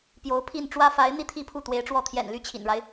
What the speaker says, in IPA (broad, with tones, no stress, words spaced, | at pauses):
pjo˧˥ʊ̯pʰi˥˩n ʈ͡ʂwä˥fa˧˥ɪ̯ n̪i˥˧t̪ʰi˥˧ pʰu˥˩t̪we˧˥ɪ̯ʈ͡ʂwɔ˥˩ t̪ʰjɛ̰˨˩n ly˥˩t͡ɕʰḭ˨˩nɻa˦ɪ̯